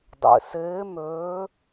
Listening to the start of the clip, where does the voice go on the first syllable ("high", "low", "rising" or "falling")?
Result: low